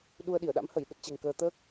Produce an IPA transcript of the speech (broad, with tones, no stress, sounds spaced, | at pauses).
ɗ u˧ ə̯ ɗ i˧˩ ə̯ ɗ a̰˧˥ m h ə˧˩ j ɗ ə˦˥ t̚ t͡ɕ ɛ̤˨˩ ŋ k əː˧ t̪ əː˦˥ k̚